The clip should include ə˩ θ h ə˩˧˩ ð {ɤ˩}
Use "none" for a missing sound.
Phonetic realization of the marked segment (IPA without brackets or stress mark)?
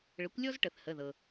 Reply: ɤ˩